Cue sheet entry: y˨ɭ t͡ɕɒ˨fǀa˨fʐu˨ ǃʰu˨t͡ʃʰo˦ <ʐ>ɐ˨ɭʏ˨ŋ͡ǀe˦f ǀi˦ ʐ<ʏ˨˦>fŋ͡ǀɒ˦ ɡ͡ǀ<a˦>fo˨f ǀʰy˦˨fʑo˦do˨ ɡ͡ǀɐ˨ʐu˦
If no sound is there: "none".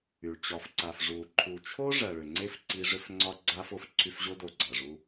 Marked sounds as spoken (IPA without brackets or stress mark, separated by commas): ʐ, ʏ˦, a˦